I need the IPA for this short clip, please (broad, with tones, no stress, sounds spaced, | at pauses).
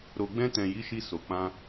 ɾ o˨ ɡ͡b ɛ̃˧ t ɛ̃˨ j i˨˦ ʃ i˧ s o˨ k͡p ã˧